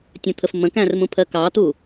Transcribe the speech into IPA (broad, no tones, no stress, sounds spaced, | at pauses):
tʲ ə̃ t̪ʰ ə f m ə̃ k æ̃ r m ũ pʰ ɜ k ɑ t̪ u